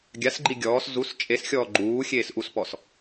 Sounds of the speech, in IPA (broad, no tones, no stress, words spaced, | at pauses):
ɡʲas ɡ͡ǃiɡʲɔːs zus t͡ʃʼesxʲɔː ɡ͡ǃuː xʲeːsʔuspɔs